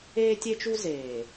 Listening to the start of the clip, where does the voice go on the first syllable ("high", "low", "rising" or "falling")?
high